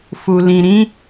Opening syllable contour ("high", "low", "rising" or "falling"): low